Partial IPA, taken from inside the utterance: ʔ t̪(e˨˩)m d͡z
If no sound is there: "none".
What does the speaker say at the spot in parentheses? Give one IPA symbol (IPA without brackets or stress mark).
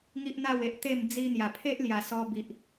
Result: e˥˧